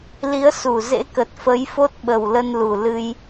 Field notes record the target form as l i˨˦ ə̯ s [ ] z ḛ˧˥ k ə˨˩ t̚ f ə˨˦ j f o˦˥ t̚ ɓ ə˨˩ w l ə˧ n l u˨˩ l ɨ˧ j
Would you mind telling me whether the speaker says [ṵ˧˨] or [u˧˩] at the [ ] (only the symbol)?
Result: u˧˩